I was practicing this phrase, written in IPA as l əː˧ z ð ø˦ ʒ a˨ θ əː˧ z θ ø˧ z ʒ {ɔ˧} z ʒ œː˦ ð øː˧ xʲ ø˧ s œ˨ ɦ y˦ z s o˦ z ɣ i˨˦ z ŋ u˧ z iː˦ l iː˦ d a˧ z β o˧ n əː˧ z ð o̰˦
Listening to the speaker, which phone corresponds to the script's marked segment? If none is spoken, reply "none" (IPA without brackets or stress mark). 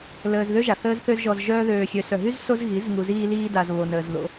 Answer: ɔ˧